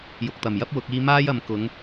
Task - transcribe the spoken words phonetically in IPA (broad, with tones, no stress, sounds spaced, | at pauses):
j ʊ˨ k̚ t̪ ɐ˨˩ m j ɐ˥ p̚ w ʊ˨˥ k̚ iː˥ m aː˥ j ɐ˨˧ m k ʊ˨˥ ŋ